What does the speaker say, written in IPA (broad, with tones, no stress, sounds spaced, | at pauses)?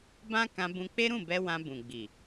b ã˦ k ã˧ b ũ˧ k͡p e˦ ɾ ũ˦˨ b ɛ˧ w ã˧ b ũ˨ ɡ͡b i˨